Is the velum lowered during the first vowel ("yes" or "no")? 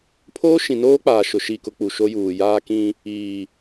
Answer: no